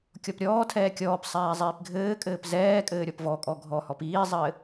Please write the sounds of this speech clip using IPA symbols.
kʲ ɔ p ɾʲ ɔː tʰ ɛː kʲ ɔː p sˤ ɛː zˤ iː p ɡʱ ɘː kʼ ɘː p z ɛː kʼ ɘː ɾʲ ɔ p v ɔ kʼ ɔ ɡʱ ɔ h ɔ p iː zˤ ɘː

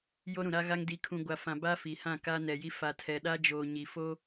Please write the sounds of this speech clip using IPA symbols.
j o˦ ɾ ũ˨ ɾ a˦ ɣ a˦ ŋ d i˨ kʰ ũ˨ ɡʷ a˨ f ã˨ b a˦ f i˨ h ã˦˨ k a˦ n ɛ˨ j i˦ f a˨ tʰ ɛ˨ ɗ a˦ d͡ʒ oː˨ ɲ i˨ f o˦

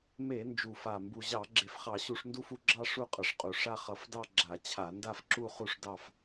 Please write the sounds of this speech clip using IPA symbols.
m e˧˩˧ n d͡ʒ u˨˩ f a˨˩ m b u˨˩ ʑ ɑ˧˩˧ ɡ͡ǁ e˨˩ f χ ɑ˧˩˧ ɕ u˧˩˧ ʂ n d u˥˧ f u˥˧ ɡ͡ǁ ɑ˥˧ ʂ u˥˧ qʼ ʌ˨˩ ʂ qʼ u˨˩ ʂ a˥˧ χ ʌ˧˩˧ f d ɑ˥˧ ɡ͡ǁ a˧˩˧ t͡ɕʰ a˧˩˧ n d a˥˧ f ǁ u˥˧ χ u˥˧ ʂ d ɑ˥˧ f

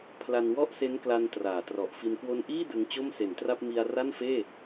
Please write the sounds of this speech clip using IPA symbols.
pʰ l a˧ n w ɔ˥˩ ʔ s e˦˥ n k l a˧ n t r aː˩˦ t r ɔ˨˩ ʔ f i˧ n k w o˧ n ʔ iː˥˩ d ɯ˧ ŋ t͡ɕ o˥˩ m s e˩˦ n t r a˥˩ p̚ m i˧ a̯ r a˥˩ n f eː˥˩

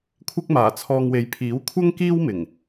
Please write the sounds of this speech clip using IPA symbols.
kʷʰ ɪ˥ k̚ m aː˨˩ t͡sʰ ɔː˧ ŋ w e˨˧ j pʰ iː˨˥ w kʷʰ ɐ˥ ŋ k iː˥ w m ɪ˨˩ ŋ

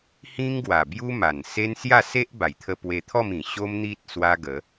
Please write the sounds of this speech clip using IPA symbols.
h ĩ˦ ŋ ɡ w a˨˩ b j u˦ m a˨˩ n s e˦ n s j a˥˧ s e˦ ʔ b a˨˩ j t̪ʰ ə˧ p w e˧ t̪ʰ ɔ˥˧ m ĩ˨˩ ɕ o˦ m n̪ i˦ t̚ s w a˦ ɡ ə˨˦

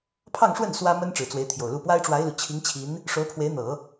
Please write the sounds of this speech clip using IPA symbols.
pʰ ɑ˥˧ ŋ ʂ w ə˥˩ n s w ä˥ m ə˥ n ʈ͡ʂ ɻ̩˨˩ t͡s w e˧˥ ɪ̯ t̪ʰ j o˨˩ ʊ̯ l u˥˩ p w a˥ ɪ̯ ʈ͡ʂ w a˧˥ ɪ̯ l u˨˩ t͡ɕʰ i˧˥ ŋ t͡ɕʰ i˧˥ n | ʂ o˧˥ ʊ̯ pʰ w e˧˥ ɪ̯ n̪ ɤ˨˩˦

